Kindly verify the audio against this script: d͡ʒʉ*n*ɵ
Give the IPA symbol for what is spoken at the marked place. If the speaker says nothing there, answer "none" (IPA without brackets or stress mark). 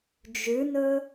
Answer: n